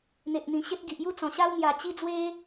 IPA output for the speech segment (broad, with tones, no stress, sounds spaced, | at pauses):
n̪ e˨ ʔ n̪ ĩ˨˩ ɕ e˦ t̚ ɡ i˨ ʔ j u˥˧ t͡s ɔ̃˨˩ ɕ a˦ w n̪ j a˨˩ t͡ɕ i˦ d͡z w e˦